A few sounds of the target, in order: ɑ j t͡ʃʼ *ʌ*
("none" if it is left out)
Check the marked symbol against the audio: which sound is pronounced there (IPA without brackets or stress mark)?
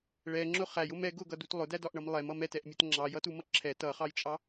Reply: ɑ